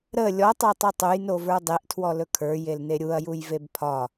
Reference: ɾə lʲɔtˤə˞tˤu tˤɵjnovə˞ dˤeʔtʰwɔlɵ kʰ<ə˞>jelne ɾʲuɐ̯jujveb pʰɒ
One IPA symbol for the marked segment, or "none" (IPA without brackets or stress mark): ə˞